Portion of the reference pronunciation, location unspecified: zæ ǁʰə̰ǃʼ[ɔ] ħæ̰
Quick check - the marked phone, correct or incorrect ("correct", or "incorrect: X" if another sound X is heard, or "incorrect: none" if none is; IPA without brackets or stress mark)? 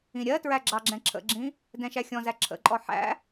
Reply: correct